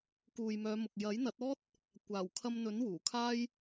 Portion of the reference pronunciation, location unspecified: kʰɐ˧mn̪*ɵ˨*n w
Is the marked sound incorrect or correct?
incorrect